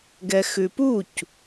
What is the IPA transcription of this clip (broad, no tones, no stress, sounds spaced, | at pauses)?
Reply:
ɡ ɛ x ʉ p u c